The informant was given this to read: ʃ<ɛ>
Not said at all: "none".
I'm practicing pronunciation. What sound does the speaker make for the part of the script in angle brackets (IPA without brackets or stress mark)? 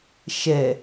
ɛ